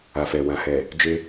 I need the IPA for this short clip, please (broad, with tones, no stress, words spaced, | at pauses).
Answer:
a˨fɛ˨ wã˨hɛ˨ | d͡ʒe˦